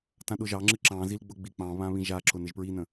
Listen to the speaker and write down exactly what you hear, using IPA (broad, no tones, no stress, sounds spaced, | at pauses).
t ã ɗ ʊ ʒ ɑ ŋ͡ǁ ɨ ǁ ɑ̃ z i l ɡ͡b ʊ ɡ͡b i k͡p ɑ̃ β ã β ĩ ʒ a ǁ ʊ n ɪ ʒ p ɹ i n ə̃